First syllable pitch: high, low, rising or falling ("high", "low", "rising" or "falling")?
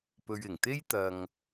low